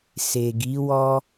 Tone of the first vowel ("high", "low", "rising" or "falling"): low